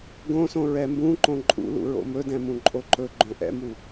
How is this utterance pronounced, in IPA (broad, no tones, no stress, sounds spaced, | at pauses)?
ɡ õ s õ ɹ ɛ m b ũ ǃ õ ǃʼ ṵ l ṵ ɹ o̰ m ɵ d ɛ̃ m ũ ǃʼ o ǃ ɵ ɡ͡ǃ õ ʔ ɛ̰ m u